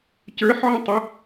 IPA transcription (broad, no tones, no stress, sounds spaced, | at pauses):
c ə˞ ħ ʕ ə̃ tˤ ə